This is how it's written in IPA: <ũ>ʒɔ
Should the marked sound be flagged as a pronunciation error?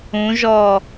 no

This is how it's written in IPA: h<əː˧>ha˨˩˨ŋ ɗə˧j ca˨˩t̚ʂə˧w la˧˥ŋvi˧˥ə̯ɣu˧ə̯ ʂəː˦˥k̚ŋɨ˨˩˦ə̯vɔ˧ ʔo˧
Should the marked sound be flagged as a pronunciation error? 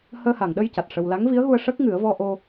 no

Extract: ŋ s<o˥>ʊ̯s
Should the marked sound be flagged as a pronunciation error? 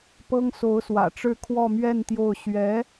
yes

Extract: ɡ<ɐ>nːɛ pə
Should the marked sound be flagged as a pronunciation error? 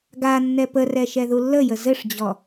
yes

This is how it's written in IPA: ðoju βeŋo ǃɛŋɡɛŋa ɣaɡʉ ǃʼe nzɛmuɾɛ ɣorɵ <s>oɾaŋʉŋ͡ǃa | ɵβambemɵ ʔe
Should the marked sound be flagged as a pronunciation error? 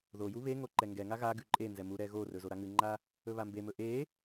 yes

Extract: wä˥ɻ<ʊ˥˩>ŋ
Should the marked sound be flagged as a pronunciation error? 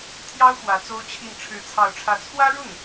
no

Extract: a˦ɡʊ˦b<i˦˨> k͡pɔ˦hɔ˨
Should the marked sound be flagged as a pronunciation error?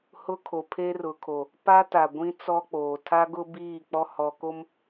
yes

